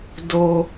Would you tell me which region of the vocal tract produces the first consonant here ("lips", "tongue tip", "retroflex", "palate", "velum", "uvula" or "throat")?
tongue tip